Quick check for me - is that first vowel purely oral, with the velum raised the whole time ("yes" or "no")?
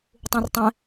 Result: no